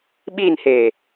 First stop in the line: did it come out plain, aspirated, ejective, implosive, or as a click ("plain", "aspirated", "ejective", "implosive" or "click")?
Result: implosive